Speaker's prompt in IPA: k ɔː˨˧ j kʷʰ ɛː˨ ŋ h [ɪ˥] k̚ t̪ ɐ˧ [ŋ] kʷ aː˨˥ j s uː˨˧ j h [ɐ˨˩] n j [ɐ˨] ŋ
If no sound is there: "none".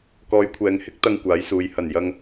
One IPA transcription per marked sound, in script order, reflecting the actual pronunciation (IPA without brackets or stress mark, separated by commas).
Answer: ɪ˥, ŋ, ɐ˨˩, ɐ˧